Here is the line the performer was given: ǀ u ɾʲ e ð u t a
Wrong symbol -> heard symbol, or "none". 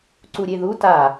none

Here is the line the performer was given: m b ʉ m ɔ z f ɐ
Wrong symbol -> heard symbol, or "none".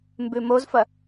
ɔ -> o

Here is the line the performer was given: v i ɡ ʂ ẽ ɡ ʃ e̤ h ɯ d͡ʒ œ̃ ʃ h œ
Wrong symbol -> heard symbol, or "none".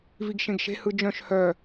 ʂ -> ʃ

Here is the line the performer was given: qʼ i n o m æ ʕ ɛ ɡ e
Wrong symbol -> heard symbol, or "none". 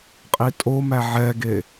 n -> tʼ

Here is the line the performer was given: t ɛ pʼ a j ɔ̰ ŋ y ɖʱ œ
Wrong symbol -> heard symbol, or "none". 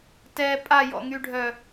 none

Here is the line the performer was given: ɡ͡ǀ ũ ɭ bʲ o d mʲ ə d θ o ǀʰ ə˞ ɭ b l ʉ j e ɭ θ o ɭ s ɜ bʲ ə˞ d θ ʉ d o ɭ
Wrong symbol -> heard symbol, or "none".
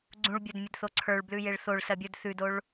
none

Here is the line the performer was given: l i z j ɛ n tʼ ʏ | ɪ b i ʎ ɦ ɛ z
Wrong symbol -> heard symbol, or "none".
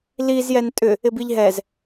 none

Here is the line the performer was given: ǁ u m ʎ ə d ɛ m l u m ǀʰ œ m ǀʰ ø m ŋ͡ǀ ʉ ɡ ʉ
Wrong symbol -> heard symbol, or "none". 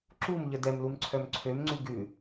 none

